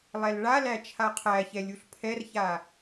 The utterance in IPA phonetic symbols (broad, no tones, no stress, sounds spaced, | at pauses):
lˠ ɛ l ɭ a l æ t͡ʃʰ a qʰ æ ç ɛ lʲ u ɬ pʰ ɛ r ç a